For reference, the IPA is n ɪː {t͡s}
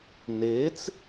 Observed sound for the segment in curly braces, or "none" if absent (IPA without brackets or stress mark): t͡s